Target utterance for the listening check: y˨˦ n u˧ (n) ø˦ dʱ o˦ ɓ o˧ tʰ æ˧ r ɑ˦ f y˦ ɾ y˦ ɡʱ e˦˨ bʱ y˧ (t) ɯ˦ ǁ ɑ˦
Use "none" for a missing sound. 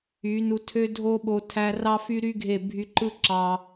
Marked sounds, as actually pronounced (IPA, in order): tʰ, ǃ

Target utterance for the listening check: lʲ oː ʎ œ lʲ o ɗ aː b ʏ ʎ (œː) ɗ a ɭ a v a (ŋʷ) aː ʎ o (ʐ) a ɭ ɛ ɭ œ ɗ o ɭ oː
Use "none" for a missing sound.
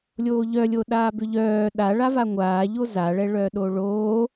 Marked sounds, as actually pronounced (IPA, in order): œː, ŋʷ, z

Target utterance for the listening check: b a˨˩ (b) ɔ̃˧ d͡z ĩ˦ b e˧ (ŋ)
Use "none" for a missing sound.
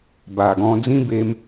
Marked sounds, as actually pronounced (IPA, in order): ɡ, m

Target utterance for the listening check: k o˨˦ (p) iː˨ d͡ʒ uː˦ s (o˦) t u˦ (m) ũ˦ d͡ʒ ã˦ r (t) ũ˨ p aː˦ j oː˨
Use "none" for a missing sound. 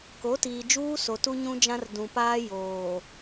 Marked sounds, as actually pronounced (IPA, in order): t, o˨, ɲ, d

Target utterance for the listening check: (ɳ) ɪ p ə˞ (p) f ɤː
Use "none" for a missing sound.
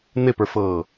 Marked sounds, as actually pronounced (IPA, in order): n, none

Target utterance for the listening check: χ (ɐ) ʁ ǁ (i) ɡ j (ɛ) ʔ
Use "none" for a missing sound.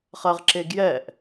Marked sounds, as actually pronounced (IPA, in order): ɐ, e, ɛ

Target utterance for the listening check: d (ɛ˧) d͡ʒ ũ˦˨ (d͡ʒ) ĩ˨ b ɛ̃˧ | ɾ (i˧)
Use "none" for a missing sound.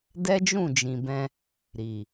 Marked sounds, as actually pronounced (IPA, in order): ɛ˦, d͡ʒ, i˨

